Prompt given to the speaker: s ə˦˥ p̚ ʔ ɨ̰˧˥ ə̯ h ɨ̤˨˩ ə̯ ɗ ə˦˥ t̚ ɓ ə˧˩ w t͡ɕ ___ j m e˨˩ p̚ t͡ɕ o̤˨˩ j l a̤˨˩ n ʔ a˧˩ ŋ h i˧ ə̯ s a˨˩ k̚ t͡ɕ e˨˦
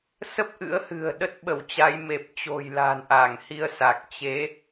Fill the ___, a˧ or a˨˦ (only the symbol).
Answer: a˨˦